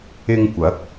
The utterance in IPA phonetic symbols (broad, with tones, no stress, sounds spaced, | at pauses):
ɪ˧ ŋ kʷ ɐ˨˥ k̚